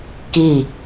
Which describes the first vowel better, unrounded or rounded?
unrounded